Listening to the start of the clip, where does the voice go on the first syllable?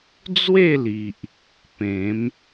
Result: falling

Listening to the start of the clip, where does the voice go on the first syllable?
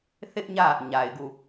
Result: high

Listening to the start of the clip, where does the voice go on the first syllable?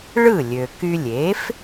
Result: falling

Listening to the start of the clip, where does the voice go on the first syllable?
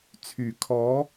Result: low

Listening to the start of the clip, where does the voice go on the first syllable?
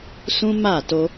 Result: high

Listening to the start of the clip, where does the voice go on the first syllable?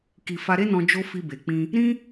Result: low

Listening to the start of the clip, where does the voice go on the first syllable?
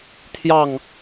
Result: falling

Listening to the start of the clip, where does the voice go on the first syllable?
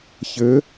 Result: rising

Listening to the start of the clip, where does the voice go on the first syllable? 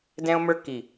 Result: high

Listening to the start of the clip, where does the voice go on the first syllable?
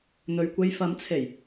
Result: low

